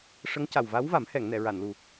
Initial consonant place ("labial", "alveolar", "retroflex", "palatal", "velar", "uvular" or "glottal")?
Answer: retroflex